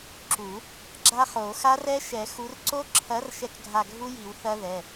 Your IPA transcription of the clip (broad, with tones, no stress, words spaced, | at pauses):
ǁu˨˩˦ | ɡ͡ǁa˦˥χo˨˩˦ xa˦˥rɛ˦˥ ʃɛ˨˩˦xu˨˦rǀo˦˥ ǁʰɐ˨˦r ʃɛ˦˨kɡʱa˦˨ɡʱu˦˥ji˨˩˦w θɐ˦˥ðɛ˩˧˩